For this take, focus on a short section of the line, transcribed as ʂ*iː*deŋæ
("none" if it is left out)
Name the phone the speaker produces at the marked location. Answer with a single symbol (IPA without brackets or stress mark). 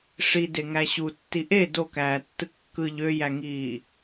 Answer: i